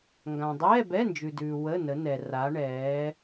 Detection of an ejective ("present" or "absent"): absent